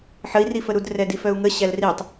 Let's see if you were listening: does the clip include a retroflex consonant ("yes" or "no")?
no